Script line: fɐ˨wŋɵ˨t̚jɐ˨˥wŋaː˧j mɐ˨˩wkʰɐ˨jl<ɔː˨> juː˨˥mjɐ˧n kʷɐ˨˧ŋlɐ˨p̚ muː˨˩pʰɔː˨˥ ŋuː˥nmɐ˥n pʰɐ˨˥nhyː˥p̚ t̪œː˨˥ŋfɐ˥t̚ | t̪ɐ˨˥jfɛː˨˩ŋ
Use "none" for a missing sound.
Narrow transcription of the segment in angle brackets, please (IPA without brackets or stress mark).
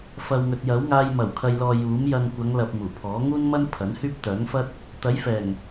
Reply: ɔː˨